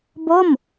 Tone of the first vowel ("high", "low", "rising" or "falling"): falling